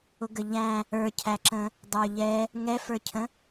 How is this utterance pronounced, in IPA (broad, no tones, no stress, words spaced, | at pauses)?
ʊɡəʎæ̃ | ə˞cʰæǁə̃ | dˤə˞ʎɛ | ŋɛfə˞cʰə̃